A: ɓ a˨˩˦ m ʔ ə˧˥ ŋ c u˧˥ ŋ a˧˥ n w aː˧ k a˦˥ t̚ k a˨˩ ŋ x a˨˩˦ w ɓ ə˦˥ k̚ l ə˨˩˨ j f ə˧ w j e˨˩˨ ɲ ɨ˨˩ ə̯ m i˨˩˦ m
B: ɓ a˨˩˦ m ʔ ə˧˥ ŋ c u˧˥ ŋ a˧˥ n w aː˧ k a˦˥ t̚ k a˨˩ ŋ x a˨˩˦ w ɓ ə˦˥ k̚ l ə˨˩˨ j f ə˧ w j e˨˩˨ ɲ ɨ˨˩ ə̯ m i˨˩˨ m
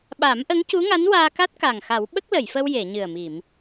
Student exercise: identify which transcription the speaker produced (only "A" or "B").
B